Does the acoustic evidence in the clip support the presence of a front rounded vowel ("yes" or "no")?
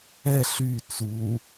yes